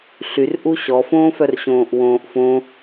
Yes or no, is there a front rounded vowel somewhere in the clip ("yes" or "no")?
yes